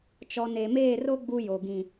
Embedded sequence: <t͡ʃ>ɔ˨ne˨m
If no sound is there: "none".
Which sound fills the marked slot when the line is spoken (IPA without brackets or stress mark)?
t͡ʃ